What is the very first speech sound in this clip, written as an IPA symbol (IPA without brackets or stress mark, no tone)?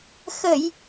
x